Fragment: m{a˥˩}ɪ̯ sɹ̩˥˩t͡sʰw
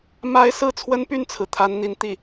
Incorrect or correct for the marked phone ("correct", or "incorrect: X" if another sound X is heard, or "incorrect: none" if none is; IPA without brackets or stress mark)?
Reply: incorrect: a˥